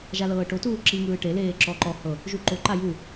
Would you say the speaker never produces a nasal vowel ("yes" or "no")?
yes